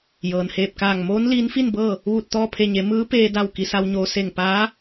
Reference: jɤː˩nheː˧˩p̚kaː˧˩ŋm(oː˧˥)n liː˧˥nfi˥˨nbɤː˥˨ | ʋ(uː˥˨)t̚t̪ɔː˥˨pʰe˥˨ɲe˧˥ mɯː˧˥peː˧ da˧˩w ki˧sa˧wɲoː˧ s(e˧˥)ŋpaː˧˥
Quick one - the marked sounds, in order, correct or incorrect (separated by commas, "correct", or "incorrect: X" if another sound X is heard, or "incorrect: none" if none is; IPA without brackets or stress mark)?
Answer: correct, correct, incorrect: e˧˩